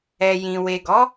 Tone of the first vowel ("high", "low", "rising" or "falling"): low